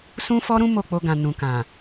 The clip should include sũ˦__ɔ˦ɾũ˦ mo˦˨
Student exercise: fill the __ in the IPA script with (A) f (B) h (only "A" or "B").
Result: A